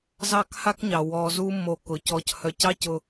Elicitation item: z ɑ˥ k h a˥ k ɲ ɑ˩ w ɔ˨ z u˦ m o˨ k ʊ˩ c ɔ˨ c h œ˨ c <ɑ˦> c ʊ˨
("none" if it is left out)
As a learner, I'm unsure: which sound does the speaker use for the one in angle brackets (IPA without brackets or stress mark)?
ɑ˦